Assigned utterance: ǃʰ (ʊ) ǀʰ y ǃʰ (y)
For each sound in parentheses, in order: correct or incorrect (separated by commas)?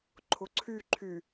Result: correct, correct